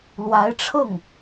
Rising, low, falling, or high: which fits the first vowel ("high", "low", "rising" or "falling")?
rising